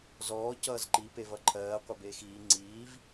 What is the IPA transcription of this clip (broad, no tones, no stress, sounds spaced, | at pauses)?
z ɔː c ʌː z ǃ i p e v ʌ ǃʰ ɜː qʷ ʌ b eː x iː ŋ͡ǀ iː v